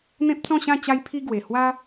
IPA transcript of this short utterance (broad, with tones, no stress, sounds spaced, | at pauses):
n̪ ẽ˦ p̚ t͡s ɔ̃˥˧ ɕ ã˥˧ t͡ɕ a˧ j pʰ i˧ ɡ w e˨˩ h w a˦